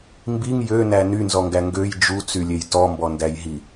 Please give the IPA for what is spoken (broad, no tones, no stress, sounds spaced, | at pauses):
m b i ŋ j ø n æ n y n z ɔ ŋ ɡ æ ŋ ɡ ø j d͡ʒ u t͡s y lʲ e j t ɔ m b ɔ n d æ j ɦ i